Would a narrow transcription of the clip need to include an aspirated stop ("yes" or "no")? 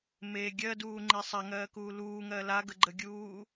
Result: no